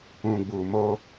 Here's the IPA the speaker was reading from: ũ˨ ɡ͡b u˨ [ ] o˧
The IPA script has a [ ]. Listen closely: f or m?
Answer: m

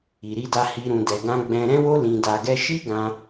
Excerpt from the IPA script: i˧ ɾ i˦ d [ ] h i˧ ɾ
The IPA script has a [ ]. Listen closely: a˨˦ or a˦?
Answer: a˦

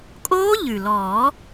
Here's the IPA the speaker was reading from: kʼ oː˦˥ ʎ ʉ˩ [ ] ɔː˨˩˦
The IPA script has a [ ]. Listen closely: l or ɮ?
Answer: l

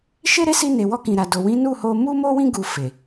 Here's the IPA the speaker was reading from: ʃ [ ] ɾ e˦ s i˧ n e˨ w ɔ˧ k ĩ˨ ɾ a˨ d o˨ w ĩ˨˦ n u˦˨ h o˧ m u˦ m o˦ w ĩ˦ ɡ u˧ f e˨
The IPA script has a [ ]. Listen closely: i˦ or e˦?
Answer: e˦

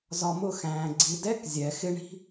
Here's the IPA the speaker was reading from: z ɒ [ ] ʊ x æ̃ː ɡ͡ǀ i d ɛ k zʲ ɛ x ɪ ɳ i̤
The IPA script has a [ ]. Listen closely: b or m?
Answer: m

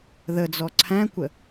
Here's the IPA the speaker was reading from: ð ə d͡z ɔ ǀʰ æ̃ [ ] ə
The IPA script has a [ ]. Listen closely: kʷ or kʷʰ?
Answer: kʷ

